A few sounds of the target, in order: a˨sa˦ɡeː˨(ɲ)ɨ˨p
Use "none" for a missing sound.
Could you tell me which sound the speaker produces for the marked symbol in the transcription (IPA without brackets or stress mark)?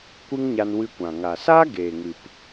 ŋ